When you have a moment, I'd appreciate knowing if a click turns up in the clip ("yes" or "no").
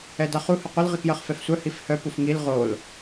no